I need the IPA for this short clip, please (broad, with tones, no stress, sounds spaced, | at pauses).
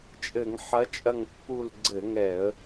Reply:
t͡ʃʼ ɘ˧˩˧ ŋ ħ ɐ˧˥ t͡ʃʼ ɐ˦˨ ŋ pː u˦˨ l ɡ͡ǀ ɘ˧˩˧ ŋ ɛ˧˩˧ ə̯